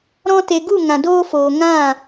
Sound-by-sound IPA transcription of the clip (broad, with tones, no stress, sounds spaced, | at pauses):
ɾ ɔ̃˧ t e˨ ɡ u˦˨ ŋ ã˨ d oː˧ f oː˨ ŋ ã˦˨